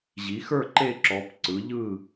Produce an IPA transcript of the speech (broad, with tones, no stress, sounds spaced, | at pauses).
ʑ i˨˦ x ə˞˥˧ ǃ e˥˧ ǁ ɔ˨˦ p ǀ ɯ˨˦ ʎ ɯ˥˧